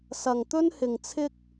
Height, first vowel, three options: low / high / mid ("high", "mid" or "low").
low